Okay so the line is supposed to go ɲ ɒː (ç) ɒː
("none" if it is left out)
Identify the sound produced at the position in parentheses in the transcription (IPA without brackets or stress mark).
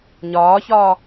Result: ç